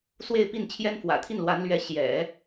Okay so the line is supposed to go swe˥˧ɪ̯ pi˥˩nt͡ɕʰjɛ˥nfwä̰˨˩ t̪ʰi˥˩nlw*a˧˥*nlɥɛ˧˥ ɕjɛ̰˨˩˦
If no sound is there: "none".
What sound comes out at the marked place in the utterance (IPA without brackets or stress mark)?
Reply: a˧˥